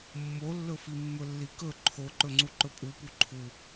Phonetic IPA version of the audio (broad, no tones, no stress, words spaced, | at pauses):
mːolːɵfi mːɵlːikɵ ǃʰoǃɵŋ͡ǀu ǃɵpʼupu ǃʰu